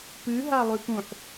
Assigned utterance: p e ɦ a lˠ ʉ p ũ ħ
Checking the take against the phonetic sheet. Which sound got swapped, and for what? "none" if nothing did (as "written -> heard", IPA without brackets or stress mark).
e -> ɨ